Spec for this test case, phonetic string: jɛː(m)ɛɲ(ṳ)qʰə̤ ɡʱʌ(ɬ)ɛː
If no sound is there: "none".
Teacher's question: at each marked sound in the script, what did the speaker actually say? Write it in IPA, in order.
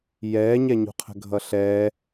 ɲ, ṳ, ɬ

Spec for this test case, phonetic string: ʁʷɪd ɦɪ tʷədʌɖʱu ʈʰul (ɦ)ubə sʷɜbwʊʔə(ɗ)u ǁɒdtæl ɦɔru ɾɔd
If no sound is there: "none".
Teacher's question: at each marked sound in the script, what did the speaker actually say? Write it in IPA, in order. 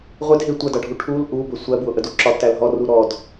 ʔ, d

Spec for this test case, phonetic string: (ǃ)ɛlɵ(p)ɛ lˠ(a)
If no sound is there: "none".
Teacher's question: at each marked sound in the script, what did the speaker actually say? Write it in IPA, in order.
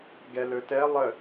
ɡ, t, ə

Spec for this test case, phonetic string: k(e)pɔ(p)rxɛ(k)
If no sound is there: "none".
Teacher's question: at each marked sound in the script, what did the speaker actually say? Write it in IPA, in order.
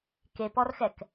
e, none, k

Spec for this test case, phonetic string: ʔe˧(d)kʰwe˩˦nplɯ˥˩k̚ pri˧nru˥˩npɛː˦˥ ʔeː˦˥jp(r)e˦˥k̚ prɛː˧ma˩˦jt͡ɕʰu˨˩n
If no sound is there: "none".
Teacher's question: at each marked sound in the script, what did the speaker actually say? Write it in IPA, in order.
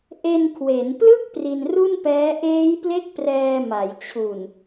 n, l

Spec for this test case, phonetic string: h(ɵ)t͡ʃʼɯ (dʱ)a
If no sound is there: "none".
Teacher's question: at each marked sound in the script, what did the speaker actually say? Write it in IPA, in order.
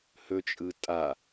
ɵ, tʼ

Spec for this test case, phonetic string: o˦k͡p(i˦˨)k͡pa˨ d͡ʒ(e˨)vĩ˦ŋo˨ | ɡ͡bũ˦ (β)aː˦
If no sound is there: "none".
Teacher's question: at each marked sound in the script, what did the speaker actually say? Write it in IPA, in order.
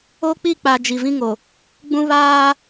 i˦˨, i˨, β

